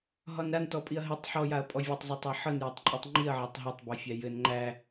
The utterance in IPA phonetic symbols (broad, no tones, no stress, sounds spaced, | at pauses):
ɦ ɒ n ɾ a n t ɔ pʼ i ɐ̯ ɦ ɘ tˤ ħ ɔ j a ɐ̯ pʼ ɔ vʲ ɘ tˤ zˤ ɘ tˤ a ħ ɤ n j ɔ tˤ ǃʼ i tˤ ŋ͡ǃ i ɐ̯ ʕ a tˤ ɦ a tˤ b ɛ fʲ æ j ɘ n ŋ͡ǃ æ